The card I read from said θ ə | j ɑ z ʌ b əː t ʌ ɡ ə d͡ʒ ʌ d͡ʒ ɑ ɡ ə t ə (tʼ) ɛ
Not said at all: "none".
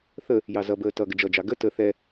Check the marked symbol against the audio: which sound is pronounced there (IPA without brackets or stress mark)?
θ